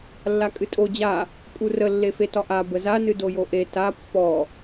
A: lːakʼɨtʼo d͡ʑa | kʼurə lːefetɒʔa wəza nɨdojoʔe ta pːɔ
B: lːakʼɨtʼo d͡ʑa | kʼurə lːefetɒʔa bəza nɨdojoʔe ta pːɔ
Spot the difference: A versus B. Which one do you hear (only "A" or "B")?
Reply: B